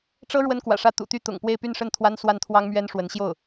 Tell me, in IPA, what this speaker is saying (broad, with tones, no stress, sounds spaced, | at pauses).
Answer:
ʈ͡ʂ ɤ˥ ɻ w ə˥ n k w ä̰˨˩ ʂ ä˥˩ t̪ ṵ˨˩ t̪ y˥˩ t̪ ʊ̰˨˩ ŋ p w e˥˧ ɪ̯ p y˥˧ n ʂ ə˥˩ n t̪ʰ w a˥ n s w a˥˩ n t̪ʰ w ɑ˥ ŋ m ɥ ɛ˥ n ʂ w ə˧˥ n ɕ j o˥˩ ʊ̯